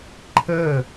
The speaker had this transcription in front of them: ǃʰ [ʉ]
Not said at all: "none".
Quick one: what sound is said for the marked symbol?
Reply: ə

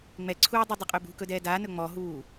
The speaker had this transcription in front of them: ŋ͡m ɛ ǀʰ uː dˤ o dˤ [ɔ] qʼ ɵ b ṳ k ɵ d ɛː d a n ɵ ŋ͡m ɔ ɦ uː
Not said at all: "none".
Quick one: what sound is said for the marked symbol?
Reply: ɵ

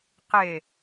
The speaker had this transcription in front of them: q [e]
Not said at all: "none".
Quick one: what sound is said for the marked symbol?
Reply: e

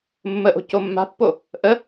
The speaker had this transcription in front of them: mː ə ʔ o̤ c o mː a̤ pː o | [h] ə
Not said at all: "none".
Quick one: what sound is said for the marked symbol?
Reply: ʔ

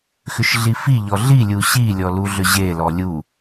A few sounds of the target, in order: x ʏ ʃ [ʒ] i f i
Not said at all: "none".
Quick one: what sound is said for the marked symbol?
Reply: ɮ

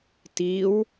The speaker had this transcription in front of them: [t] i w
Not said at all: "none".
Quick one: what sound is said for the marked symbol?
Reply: t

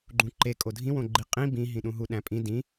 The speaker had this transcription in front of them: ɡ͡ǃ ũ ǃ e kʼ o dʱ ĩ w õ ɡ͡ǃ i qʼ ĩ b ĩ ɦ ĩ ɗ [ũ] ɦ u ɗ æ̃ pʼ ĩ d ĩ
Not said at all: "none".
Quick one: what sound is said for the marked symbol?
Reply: ũ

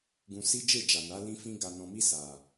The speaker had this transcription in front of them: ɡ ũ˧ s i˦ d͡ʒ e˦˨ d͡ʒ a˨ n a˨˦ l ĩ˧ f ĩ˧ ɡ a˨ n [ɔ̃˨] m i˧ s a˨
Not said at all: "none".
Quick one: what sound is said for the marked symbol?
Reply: ɔ̃˨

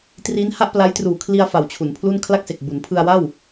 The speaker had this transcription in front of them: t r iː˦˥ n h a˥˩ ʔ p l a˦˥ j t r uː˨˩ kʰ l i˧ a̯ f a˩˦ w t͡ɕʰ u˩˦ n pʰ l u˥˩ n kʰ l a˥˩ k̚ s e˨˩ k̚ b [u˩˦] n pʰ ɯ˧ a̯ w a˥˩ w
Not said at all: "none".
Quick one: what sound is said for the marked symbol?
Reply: u˩˦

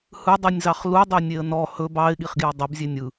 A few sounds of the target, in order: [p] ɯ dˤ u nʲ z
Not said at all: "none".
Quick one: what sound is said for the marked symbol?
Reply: h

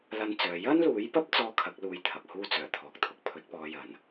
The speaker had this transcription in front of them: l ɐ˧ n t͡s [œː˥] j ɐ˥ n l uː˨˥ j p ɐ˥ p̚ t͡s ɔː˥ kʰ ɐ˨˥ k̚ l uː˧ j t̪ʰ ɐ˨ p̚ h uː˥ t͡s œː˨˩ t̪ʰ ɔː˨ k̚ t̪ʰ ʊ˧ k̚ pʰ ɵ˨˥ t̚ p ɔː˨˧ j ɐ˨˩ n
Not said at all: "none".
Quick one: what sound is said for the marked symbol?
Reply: œː˨˧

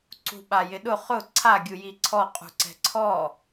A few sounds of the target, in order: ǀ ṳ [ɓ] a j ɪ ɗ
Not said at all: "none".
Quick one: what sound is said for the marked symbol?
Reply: ɓ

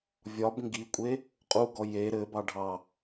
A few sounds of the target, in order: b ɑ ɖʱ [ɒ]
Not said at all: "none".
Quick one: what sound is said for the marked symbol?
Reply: ɑ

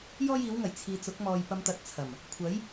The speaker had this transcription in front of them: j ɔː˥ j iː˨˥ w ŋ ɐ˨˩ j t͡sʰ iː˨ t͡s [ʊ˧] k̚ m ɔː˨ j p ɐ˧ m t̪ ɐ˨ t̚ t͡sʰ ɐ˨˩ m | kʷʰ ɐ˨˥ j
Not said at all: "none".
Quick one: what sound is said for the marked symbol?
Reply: ʊ˨˥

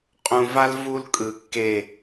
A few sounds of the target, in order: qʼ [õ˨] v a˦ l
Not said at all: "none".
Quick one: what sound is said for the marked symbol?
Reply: ũ˨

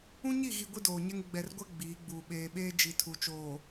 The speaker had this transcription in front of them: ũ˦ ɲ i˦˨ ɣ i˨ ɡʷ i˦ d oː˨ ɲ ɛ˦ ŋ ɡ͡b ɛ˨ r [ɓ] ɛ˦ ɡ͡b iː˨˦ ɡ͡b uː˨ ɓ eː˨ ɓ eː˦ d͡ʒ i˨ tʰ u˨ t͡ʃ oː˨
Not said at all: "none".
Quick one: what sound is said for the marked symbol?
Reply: ɡʷ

